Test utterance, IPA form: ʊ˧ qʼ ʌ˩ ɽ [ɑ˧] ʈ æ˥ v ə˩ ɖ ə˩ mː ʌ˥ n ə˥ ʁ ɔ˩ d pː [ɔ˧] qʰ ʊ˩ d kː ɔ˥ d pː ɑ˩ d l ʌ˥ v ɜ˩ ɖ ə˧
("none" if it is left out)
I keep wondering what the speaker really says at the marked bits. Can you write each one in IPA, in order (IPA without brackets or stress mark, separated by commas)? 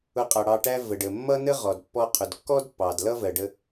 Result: ɑ˧, ɔ˧